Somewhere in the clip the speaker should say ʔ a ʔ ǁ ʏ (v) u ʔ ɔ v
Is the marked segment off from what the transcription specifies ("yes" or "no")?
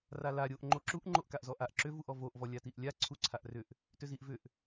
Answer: no